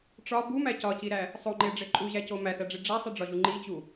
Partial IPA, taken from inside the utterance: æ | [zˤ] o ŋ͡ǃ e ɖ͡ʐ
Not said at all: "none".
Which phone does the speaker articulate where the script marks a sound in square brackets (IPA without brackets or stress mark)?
sˤ